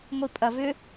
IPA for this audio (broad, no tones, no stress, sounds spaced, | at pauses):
ŋʷ i pʼ ɐ v ʏ